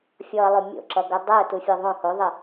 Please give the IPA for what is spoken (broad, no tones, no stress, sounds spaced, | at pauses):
fʲ ɔ ə̯ lˠ o mʲ o̰ ǁ ʌ ɡ o dˤ ɤ ʊ̯ t u fʲ ɤ ðˤ õ h o ðˤ ɘ